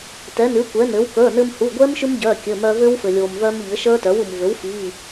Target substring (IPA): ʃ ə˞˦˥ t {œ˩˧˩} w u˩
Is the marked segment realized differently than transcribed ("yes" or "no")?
yes